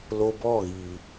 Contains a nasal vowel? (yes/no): no